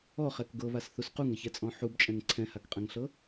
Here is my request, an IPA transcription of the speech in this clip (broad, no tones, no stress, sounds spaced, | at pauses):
ɔ χ ɛ k ɡ ɤ β a s θ u s q u ŋ ɛ ç ɛ t͡sʼ ɔ̃ ħ u b t͡ʃʼ ɛ̃ ŋ ǀʰ ɛ̃ h a k qʼ ɛ̃ ŋ ɬ ɤ